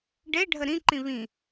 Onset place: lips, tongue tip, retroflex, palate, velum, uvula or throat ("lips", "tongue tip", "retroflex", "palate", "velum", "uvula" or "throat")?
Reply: retroflex